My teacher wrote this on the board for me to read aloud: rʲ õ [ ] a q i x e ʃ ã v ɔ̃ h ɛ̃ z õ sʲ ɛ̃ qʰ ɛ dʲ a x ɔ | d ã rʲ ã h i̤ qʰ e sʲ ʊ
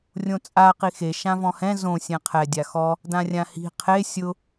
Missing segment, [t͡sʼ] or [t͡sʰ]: t͡sʼ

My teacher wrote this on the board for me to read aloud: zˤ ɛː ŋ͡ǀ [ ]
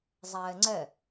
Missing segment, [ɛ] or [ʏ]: ɛ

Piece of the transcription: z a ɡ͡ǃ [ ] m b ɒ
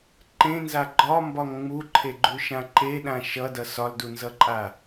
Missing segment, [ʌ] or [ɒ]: ɒ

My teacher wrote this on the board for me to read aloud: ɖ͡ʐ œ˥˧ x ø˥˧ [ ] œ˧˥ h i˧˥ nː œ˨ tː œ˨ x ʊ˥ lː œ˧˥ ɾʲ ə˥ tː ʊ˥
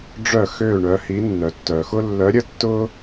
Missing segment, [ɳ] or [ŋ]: ɳ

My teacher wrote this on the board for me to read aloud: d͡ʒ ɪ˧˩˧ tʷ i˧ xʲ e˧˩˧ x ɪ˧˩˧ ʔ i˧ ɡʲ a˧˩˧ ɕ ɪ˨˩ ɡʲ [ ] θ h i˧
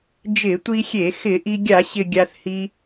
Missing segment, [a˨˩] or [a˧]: a˧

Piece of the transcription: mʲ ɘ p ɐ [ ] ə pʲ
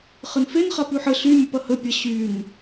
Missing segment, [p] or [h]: h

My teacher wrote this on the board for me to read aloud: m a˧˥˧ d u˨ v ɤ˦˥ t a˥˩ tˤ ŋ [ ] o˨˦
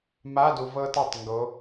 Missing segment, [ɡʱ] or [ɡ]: ɡ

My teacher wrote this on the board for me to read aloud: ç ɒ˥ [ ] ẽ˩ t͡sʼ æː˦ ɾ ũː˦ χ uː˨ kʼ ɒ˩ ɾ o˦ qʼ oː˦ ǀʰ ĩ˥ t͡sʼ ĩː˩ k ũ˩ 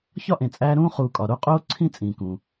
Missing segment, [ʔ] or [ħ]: ʔ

